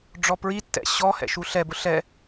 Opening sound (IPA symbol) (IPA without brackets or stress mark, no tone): ɖ͡ʐ